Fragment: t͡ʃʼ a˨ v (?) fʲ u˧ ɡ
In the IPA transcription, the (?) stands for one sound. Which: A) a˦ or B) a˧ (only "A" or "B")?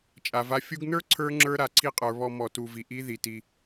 B